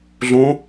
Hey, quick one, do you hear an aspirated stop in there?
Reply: no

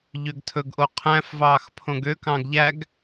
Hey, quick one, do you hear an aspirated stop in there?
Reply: yes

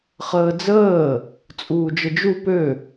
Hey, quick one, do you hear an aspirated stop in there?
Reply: no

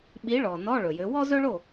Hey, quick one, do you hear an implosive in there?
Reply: yes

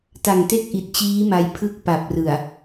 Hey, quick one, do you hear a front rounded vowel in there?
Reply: no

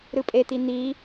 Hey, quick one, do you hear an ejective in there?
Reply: yes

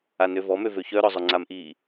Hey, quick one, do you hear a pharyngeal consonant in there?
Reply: no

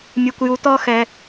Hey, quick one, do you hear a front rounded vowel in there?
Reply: no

